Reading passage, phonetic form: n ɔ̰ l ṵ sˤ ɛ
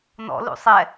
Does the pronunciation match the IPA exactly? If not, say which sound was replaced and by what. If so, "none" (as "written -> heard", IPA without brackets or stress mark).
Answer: none